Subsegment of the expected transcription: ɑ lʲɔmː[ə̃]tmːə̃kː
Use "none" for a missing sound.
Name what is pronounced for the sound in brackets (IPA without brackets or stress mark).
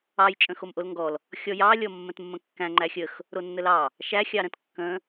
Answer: ə̃